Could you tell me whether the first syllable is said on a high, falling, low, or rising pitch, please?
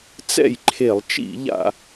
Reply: falling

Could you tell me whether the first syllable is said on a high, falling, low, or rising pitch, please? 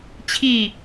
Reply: falling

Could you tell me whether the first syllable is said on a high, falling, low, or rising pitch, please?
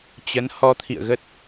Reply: rising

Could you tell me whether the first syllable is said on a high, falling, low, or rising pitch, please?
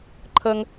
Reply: high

